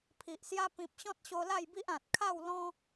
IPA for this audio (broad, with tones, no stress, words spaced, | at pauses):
pʰi˨ʔsja˦ pĩ˨p̚ɕɔ̃˦t̚ ɕo˧la˥˧jbi˦ʔ ã˨t̚ kʰa˥˧w lɔ̃˦